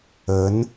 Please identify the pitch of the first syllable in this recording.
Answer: rising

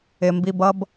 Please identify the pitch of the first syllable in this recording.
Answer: low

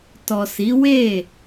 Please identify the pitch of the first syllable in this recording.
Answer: low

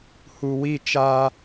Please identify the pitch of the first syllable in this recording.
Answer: low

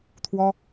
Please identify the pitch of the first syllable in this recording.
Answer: high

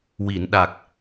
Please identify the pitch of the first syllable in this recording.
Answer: low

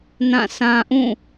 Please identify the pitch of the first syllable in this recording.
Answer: falling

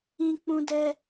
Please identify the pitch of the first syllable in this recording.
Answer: high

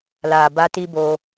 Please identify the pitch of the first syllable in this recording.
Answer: low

